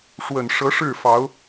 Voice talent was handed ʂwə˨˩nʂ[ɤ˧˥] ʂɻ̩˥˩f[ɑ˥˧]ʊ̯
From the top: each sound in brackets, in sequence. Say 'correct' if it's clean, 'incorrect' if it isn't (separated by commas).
correct, incorrect